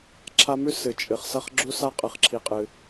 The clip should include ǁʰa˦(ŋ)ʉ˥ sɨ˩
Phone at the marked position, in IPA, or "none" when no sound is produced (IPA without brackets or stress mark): m